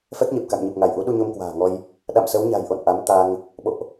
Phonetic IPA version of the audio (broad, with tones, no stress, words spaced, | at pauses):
fɛ˦˥k̚ɲe˨˩p̚ka̰˧˨ŋɲɨ˨˩p̚ ŋa˧˩jʔu˨˦ ɗu˧ɲo˧m kwa̤ː˨˩ŋɔ˧j | ɗa̰˧˨msə˨˦wɲa̤˨˩jʔo̰˧˨n ʔa˨˦mt̪a˧ŋ | ɓo̰˧˨ʔ